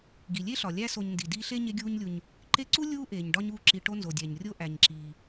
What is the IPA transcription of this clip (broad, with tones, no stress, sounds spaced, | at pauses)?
ɡ i˩ lʲ e˥ ɬ ɒ˩ lʲ æ˦ s o˨ ɲ n d i˩ d iː˦ ɬ e˥ ɲ e˦ ɡʲ uː˦ ɲ lʲ u˨ ɲ | ǃ e˦ ǀ u˥ lʲ uː˥ ʔ eː˨ ɲ ɖ ɒ˥ ɲ uː˦ ǁ i˨ ʈ o˦ n z o˩ dʲ æ˩ ɲ rʲ o˦ ʔ æ˩ ɲ ǁ iː˩